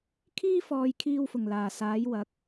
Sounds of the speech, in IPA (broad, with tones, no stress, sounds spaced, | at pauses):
kʰ iː˥ f ɔː˨˧ j kʰ iː˧ w f ʊ˨˩ ŋ l aː˨˩ s aː˨˥ j w ɐ˨˥ k̚